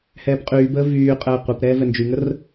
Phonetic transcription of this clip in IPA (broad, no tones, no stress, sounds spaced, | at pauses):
h ɛː p qʼ yː b əː v yː qʼ əː qʷ ɛ p ɾ ɛː v ɛ n d͡ʒ y ŋ ə r